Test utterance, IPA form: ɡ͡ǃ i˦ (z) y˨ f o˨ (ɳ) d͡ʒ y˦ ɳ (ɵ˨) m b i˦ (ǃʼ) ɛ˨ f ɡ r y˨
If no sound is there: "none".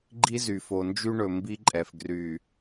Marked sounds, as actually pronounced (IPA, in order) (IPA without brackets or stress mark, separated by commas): z, n, ɵ˨, ǃʼ